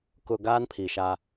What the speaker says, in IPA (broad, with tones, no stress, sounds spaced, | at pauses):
k ʊ˨ ɡ aː˦ n pʰ i˨ ʃ a˦